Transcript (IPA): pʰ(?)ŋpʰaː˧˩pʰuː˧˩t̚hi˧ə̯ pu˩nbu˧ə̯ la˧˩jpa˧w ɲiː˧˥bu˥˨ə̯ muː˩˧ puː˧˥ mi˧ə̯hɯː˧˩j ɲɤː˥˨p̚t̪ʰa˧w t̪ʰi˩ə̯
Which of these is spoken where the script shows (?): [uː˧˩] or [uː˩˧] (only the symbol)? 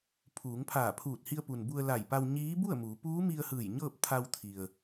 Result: uː˩˧